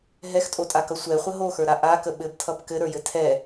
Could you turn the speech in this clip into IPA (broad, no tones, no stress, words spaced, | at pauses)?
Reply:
ɦɛxtʼotʼakʌ sʷɛχʷə ɦoxə˞ɾa ʔakə ɓɘbtʰʌb kɘɾə˞jɘ tʰɛ